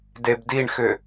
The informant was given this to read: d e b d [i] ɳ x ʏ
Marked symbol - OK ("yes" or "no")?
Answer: yes